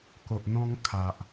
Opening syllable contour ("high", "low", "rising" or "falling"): low